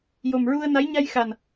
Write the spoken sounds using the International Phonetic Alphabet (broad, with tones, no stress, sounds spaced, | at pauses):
j o˨˩ m ɹ u˧ ə̯ n a˧˥ j ɲ a˧ j x a˨˩ n